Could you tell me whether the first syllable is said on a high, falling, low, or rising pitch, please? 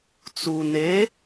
low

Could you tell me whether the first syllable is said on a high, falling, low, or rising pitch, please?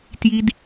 high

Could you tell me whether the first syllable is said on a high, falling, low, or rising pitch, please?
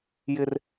low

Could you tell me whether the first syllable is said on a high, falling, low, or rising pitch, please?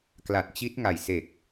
low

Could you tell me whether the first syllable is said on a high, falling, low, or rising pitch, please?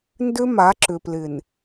high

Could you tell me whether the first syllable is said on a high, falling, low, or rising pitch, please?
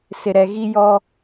low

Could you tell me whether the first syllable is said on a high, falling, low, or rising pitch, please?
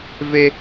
high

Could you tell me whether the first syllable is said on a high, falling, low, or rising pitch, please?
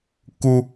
high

